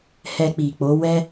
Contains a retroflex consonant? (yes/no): no